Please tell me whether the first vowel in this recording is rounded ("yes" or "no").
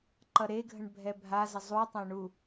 no